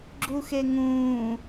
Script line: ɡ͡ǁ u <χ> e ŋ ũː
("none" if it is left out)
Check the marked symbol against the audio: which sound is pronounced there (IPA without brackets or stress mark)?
x